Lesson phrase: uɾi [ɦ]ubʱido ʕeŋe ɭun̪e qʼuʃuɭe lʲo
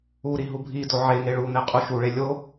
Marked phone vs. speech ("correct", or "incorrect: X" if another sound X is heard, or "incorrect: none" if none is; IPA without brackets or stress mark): correct